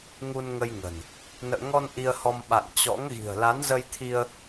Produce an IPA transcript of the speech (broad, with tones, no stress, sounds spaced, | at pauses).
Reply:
ŋ u˧ n ŋ ə˧ j ŋ ə̤˨˩ n | n ə̰ː˧˨ ŋ ɔ˧ n ʔ i˧ ə̯ h ɔ˧ m ɓ a̰˧˨ n t͡ɕ ɔ̰˧˥ ŋ ɣ i̤˨˩ ə̯ l a˨˦ n z ə˧ j t̪ʰ i˧ ə̯